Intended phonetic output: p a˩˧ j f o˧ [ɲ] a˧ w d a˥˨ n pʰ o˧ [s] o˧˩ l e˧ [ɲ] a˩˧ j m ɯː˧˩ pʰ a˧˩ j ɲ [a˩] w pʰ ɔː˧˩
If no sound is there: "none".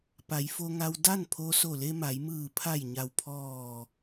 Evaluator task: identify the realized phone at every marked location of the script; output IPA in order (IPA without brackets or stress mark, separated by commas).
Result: ŋ, s, m, a˩